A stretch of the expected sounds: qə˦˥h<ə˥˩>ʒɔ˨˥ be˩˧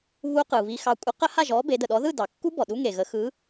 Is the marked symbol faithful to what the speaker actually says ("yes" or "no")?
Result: no